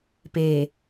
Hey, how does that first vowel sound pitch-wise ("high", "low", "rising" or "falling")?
low